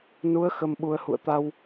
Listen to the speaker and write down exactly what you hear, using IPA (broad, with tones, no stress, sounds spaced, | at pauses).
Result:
n u˨˦ ə̯ x ə˧ m ɓ u˧ ə̯ h ṵ˧˨ ə̯ t̪ a˧ w